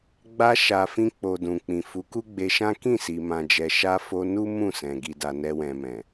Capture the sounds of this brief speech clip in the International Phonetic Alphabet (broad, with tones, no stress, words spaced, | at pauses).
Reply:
ɡ͡ba˧ʃa˨ fĩ˧k͡po˨ dũ˨k͡pĩ˨ fu˨˦ku˦ɡ͡be˧ʃã˦ kĩ˦˨si˨mã˨d͡ʒɛ˨ ʃa˧ fo˧nu˦ mũ˦˨sɛ̃˨ ɡi˨da˨ nɛ˧wɛ̃˨mɛ̃˨